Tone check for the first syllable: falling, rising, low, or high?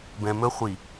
low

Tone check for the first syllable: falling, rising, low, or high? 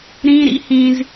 high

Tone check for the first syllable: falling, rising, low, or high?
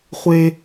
high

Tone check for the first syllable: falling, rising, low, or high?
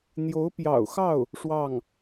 rising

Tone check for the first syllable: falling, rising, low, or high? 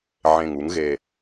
low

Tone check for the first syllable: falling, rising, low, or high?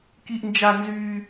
high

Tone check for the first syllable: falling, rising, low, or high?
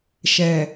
low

